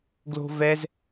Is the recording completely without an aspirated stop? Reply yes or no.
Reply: yes